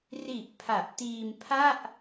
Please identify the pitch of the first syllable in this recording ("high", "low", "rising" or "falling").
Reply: low